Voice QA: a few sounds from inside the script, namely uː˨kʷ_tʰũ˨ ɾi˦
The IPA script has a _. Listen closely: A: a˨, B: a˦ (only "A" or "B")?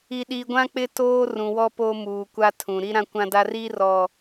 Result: B